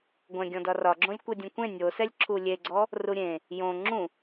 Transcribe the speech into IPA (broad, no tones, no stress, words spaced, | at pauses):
ɡʷɛ̃ ɡʲɔ̃dɒrɒɡ͡ǁõlʲ kʷedʲũkʷẽ nʲosɛlʲ ǁʰulʲeɡ͡ǀɔ | ruɾʲẽ | jõ ŋ͡ǁũ